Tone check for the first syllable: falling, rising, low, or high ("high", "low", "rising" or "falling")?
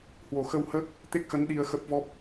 low